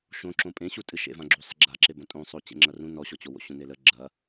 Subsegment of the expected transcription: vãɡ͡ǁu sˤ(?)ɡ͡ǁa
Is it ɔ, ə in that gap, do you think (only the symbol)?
ə